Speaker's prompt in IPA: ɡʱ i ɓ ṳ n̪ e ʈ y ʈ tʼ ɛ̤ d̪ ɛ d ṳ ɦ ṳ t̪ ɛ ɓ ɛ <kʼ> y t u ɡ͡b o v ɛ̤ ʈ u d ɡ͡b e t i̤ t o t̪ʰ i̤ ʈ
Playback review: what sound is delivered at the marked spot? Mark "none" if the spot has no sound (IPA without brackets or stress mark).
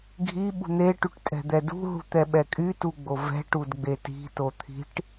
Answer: kʼ